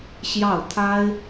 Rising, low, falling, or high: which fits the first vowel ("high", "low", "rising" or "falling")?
falling